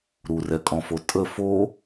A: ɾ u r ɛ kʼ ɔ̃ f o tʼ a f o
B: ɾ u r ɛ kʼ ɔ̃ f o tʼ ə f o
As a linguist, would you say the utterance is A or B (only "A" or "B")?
B